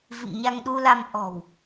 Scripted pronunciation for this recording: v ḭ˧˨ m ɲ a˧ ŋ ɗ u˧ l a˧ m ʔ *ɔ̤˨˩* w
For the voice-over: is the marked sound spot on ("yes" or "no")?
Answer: yes